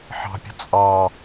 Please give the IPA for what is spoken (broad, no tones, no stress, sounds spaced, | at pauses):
ħ ɑ̤ pʲ ə̤ t͡sʼ ɑ